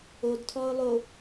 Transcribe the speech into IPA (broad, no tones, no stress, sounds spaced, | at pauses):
o d tʰ ɔ ʊ̯ lˠ o